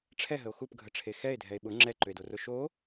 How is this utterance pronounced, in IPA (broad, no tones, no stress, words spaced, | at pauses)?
ʈ͡ʂʰɛɦəo̯ xupɡʱəʈ͡ʂʰe xɛe̯dʱɛe̯ ɓʊ ŋ͡ǁɛǃʏe̯dorʊ ʃo